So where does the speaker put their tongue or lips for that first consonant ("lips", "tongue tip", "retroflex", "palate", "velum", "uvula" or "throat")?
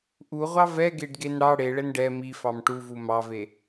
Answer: throat